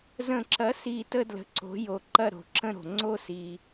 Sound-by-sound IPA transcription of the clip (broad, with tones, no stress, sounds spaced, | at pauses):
z ə̃˨˩ ǁ ɐ˩˥ s i˨˩ t ə˥˧ d l ə̤˨˩ ǀ o̤˩˥ j o˨˩ ǃ ɐ˥˧ ɾ o̤˨˩ ǁ ə̃˥˧ ɾ o̤˨˩ ŋ͡ǀ o˥˧ s i˨˩